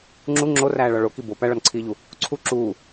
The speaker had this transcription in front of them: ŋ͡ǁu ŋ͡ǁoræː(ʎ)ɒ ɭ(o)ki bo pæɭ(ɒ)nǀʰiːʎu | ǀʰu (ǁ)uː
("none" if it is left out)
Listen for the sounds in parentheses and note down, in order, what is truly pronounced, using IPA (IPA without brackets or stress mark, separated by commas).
ɭ, o, ɒ, ǁ